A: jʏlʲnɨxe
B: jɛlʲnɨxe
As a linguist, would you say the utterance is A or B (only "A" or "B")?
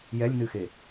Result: B